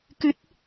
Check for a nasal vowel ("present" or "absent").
absent